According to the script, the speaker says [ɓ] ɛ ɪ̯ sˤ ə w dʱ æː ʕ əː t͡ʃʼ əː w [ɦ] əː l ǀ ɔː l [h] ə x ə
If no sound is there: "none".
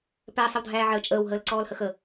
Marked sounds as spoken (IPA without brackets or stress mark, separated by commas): p, ɦ, h